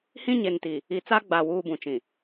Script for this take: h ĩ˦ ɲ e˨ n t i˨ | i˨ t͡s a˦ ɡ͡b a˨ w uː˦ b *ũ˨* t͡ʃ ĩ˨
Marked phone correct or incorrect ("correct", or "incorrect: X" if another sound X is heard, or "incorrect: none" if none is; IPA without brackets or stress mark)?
correct